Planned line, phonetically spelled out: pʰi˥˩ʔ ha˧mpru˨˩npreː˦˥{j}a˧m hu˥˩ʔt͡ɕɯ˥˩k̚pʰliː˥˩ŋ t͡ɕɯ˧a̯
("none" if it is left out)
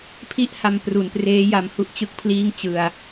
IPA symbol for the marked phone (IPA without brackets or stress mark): j